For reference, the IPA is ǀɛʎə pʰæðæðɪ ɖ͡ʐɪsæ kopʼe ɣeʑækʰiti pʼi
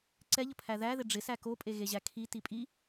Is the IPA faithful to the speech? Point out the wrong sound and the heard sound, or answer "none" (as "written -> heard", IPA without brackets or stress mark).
none